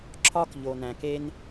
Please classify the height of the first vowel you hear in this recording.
low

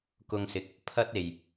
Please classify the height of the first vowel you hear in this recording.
high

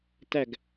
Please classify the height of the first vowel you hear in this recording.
low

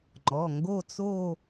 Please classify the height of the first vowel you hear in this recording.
mid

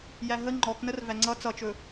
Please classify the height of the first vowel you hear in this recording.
low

